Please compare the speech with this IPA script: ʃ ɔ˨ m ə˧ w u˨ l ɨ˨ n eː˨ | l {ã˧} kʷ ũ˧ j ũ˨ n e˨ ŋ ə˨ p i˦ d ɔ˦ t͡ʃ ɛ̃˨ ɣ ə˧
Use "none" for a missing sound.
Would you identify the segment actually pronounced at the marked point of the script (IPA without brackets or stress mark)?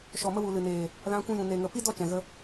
ã˧